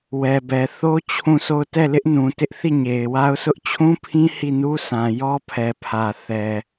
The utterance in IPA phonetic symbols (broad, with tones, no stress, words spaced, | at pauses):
wɛ˨bɛ˨ θo˦ t͡ɕʰũ˦˨sʰo˦˨ʊ̯ tɛ˦˨lɪ˦ʔnũ˨ tɪ˦ʔ θi˦˨ɲe˨ɪ̯wa˦ʊ̯sʊ˦ʔ t͡ɕʰũ˦pʰĩ˦ hi˦˨nu˦sʰã˨ jɔ˦pʰɛ˨pʰä˨ θɛ˨